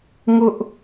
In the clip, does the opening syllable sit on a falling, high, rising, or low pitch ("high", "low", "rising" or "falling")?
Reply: high